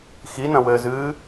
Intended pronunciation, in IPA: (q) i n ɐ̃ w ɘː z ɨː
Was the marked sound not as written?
yes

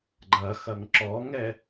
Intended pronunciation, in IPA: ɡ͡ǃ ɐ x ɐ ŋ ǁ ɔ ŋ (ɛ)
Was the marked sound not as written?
no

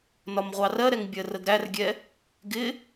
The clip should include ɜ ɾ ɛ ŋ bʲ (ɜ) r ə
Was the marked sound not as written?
no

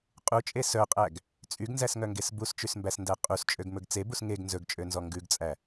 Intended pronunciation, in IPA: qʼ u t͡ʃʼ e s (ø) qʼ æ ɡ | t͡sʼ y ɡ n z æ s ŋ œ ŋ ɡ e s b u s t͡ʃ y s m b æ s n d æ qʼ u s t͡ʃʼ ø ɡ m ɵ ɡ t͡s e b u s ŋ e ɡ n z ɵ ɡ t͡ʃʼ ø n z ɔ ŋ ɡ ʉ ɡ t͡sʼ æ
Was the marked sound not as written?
yes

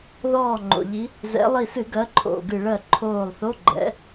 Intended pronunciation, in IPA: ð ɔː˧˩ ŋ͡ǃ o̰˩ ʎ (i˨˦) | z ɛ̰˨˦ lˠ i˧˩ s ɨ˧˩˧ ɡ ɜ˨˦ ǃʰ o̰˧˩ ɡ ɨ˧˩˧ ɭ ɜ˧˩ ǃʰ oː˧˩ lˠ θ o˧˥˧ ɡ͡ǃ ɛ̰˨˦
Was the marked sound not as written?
no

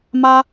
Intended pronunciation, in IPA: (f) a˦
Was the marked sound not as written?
yes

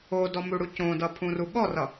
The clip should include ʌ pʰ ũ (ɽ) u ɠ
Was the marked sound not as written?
yes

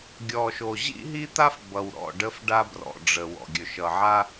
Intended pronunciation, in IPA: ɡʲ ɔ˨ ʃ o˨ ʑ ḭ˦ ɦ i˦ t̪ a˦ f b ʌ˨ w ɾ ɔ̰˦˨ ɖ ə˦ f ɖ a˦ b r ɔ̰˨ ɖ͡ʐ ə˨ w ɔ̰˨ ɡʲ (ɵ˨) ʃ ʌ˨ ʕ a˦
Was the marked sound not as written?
no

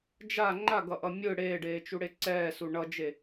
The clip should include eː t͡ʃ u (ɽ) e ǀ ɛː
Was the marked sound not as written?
no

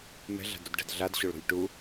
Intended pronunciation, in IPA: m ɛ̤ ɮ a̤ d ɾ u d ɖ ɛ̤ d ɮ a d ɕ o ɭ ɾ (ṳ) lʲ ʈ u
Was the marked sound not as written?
no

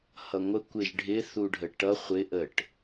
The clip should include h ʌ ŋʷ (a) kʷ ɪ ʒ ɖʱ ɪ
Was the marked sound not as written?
yes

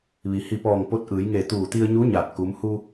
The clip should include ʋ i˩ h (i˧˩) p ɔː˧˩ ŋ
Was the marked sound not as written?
no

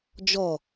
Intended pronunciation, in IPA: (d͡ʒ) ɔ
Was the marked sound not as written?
no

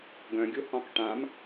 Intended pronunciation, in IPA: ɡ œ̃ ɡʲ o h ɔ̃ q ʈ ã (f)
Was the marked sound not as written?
yes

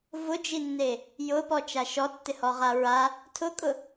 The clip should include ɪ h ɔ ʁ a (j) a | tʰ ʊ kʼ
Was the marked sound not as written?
yes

